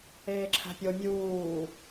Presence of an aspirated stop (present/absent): present